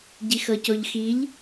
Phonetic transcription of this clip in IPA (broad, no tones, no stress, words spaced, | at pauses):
ɟixɤcoʎxiʎ